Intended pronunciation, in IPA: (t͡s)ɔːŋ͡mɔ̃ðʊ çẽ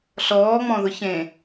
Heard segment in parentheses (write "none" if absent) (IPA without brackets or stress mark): ɬ